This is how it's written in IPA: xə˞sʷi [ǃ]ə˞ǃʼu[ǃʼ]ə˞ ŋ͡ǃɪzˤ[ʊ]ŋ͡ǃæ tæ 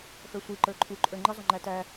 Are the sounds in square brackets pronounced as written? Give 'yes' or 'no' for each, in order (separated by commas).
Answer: yes, yes, yes